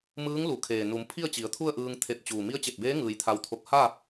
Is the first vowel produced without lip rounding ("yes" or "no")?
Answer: yes